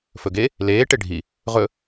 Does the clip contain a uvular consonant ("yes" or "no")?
yes